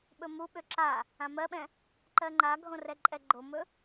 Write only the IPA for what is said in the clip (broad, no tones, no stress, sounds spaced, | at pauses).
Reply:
ɓ ɵ m u ɓ ø ǁ a | ã m ɜ ɓ ɛ̃ | ǃ ɜ ŋ͡ǃ a ɡʱ õ r ɛ ǃʼ ɛ ɡ͡ǃ o m ɵ